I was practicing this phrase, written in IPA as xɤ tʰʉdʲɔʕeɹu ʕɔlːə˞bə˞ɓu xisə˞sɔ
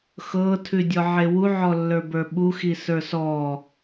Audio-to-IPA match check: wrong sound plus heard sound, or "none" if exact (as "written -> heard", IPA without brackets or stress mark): ɹ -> w